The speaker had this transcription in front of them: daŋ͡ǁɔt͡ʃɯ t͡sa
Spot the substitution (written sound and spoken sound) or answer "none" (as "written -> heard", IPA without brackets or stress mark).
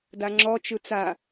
none